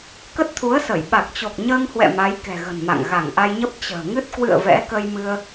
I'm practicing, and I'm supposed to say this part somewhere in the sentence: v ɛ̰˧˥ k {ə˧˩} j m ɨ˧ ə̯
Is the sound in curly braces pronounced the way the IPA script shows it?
no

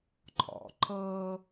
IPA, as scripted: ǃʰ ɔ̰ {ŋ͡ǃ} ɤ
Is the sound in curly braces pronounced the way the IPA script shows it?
no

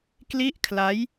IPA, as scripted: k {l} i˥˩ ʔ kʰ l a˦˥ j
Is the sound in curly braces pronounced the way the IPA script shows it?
yes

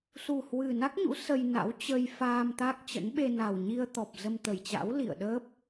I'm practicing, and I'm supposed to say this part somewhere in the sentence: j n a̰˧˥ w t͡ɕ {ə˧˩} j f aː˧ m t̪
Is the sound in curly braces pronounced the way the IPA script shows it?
no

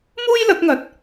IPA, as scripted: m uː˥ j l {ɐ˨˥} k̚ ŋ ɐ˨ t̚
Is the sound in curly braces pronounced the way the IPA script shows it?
yes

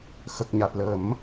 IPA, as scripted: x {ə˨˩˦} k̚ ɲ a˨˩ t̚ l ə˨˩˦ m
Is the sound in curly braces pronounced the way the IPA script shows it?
no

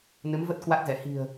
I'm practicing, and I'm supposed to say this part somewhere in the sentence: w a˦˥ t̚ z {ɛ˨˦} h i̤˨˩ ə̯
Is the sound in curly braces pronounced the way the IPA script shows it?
no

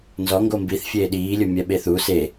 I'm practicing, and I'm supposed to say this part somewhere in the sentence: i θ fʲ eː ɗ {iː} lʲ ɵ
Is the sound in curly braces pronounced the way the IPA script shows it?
yes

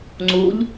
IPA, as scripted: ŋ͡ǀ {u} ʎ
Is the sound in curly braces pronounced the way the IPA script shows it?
yes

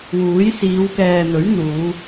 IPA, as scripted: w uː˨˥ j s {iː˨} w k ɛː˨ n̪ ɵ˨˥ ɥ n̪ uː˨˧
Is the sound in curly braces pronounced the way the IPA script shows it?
no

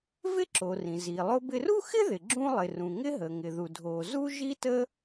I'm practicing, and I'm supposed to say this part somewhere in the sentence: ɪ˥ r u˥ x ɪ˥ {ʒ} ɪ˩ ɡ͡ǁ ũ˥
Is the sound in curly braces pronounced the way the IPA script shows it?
no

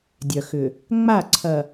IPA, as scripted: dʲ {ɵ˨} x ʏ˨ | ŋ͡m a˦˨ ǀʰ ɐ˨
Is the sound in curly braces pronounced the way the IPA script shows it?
no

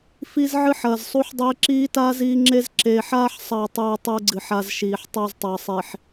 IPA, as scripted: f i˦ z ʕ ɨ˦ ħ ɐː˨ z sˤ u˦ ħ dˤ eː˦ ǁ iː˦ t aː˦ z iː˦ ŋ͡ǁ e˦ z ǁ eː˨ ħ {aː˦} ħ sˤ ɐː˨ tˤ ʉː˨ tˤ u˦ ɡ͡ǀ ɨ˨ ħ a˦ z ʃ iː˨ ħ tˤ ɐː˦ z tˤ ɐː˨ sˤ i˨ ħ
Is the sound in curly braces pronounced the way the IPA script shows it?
yes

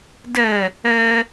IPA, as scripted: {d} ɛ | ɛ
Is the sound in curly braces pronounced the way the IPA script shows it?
yes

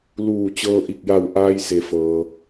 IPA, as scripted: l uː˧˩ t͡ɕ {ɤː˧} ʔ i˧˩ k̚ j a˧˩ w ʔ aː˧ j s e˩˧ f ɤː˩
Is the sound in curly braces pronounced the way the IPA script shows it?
yes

